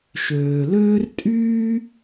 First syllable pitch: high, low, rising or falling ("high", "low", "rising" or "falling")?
low